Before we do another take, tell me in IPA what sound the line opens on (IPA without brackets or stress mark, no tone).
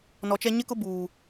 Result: n